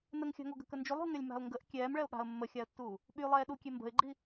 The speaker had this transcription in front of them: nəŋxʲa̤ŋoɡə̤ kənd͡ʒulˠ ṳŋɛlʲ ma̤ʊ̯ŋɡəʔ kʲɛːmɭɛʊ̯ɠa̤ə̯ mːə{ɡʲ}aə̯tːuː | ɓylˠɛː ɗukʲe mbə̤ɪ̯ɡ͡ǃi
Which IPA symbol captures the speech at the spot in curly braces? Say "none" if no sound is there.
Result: xʲ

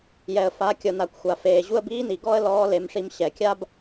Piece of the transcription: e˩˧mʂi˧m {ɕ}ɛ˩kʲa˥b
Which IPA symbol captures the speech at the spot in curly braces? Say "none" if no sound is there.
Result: ɕ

